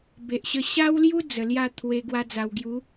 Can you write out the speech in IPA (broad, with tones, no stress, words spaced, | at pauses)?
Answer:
be˨ʔɕə˧ ɕa˦wlju˦ d͡zə˨˩lja˥˧t̪ʰwe˧ ɡwa˧d͡za˨˩wɡju˨˦